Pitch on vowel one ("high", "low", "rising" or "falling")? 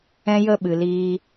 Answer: high